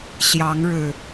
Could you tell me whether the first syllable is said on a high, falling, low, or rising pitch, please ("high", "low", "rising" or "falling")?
rising